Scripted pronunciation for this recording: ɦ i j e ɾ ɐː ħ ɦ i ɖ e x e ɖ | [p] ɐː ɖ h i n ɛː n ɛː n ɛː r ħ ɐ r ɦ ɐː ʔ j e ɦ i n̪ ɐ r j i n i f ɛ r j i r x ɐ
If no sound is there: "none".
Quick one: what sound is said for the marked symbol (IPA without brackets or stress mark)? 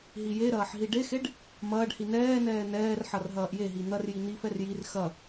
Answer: m